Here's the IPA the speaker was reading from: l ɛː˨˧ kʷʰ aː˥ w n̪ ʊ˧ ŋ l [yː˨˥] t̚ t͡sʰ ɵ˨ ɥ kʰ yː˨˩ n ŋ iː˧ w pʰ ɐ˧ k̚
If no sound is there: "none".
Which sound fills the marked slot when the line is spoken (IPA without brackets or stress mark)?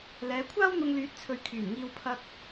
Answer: yː˨˥